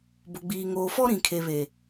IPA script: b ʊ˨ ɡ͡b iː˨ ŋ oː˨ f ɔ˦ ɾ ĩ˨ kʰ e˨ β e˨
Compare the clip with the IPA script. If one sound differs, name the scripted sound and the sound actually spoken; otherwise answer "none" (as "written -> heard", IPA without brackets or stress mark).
none